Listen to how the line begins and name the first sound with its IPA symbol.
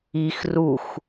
i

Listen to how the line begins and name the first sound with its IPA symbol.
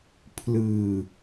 pʰ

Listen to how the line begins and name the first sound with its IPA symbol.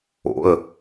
o̰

